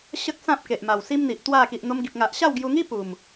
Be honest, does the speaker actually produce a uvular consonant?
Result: no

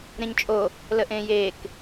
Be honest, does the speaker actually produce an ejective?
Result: yes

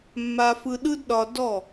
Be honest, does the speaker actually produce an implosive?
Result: yes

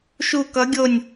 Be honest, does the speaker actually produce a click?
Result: no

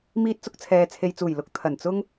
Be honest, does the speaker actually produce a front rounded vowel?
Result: no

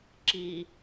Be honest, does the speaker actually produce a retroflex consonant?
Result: no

